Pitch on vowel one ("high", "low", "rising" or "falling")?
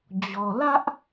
low